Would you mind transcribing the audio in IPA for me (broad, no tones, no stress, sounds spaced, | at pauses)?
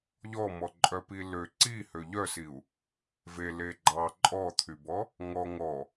ʎ ɔ m ɔ ǃʼ œ p i l ø ǀ i h ø ʎ œ s i u̯ | v e l e ɡ͡ǃ ɑ ǃʼ ɔ t̪ʰ y b ɔ | ŋ ɔ ŋ ɔ